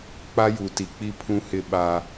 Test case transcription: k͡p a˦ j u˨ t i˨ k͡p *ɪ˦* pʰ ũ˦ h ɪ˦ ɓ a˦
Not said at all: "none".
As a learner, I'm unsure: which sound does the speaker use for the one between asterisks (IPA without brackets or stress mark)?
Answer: i˦